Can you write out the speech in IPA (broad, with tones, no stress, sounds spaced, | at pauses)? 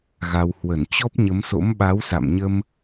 ɣ a˧ w h w ə˧˩ n t͡ɕ ɔ˦˥ p̚ ɲ ə˨˦ m s o̰˧˥ m ɓ a˨˦ w s a̰˧˨ m ɲ ə˧ m